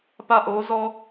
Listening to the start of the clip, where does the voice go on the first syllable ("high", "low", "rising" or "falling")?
high